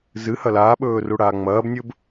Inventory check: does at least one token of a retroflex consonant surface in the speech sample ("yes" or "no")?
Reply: yes